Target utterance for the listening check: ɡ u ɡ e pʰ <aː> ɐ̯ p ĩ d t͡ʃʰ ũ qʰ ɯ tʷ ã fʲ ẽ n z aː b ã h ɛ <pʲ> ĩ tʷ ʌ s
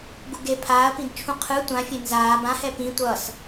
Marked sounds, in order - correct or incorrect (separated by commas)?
correct, incorrect